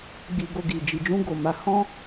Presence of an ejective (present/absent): absent